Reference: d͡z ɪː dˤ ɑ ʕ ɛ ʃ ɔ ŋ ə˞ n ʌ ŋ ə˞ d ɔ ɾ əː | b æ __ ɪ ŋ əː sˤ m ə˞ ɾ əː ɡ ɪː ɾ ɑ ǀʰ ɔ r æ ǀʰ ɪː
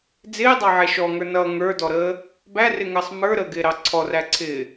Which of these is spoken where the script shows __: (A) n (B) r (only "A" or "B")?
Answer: B